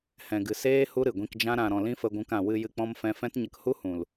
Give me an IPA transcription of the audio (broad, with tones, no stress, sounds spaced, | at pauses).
h ɛ̃˨ ɡ ɨ˨ s eː˦ h u˦ ɾ ɨ˨ ɡʷ ĩ˧ k d͡ʒ ã˦ ɾ ã˨ ɾ ɔ̃˨ l ĩ˦ f ə˧ ɡʷ ũ˧ k ã˨ w ɨ˧ j ɨ˧ k͡p ɔ̃˦ m f ɛ̃˦ f ɛ̃˦ t ɲ ə˧ k h u˦ h ũ˨ l